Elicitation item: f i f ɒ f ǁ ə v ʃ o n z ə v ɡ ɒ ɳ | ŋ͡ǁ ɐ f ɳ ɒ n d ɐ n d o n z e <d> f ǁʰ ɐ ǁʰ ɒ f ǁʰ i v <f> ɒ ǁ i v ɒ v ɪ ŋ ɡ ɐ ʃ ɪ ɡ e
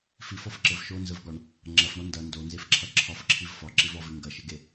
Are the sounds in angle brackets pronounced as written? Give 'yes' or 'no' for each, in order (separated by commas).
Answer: no, yes